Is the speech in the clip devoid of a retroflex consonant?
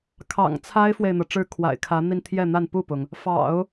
no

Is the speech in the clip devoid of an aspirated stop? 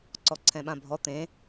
no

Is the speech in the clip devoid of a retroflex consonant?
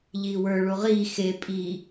no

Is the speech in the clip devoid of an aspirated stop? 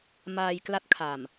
no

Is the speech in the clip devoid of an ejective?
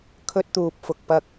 yes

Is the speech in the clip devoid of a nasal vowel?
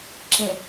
no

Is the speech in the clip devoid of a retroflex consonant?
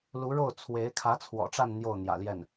no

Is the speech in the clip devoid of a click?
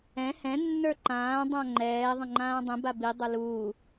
no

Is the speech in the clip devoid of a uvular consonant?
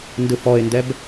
yes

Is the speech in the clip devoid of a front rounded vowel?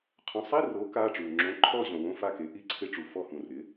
yes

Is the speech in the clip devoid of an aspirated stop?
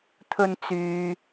no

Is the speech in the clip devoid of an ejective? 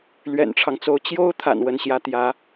yes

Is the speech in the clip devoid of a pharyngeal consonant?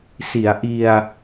yes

